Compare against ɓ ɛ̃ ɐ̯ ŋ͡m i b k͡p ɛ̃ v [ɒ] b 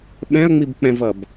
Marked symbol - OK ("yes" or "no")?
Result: no